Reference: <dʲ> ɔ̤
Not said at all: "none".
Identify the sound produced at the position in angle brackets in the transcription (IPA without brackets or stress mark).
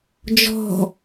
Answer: d͡ʒ